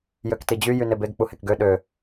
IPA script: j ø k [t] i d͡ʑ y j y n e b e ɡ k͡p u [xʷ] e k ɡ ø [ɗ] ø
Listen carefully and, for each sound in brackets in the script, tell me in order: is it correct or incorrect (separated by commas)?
correct, incorrect, correct